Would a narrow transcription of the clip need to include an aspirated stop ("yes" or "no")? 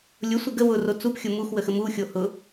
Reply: no